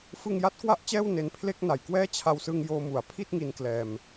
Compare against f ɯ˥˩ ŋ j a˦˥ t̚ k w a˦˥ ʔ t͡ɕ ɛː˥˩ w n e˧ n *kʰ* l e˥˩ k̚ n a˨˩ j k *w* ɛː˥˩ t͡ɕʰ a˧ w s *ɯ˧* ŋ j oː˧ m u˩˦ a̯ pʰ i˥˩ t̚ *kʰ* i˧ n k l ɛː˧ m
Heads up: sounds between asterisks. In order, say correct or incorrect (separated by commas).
incorrect, correct, correct, incorrect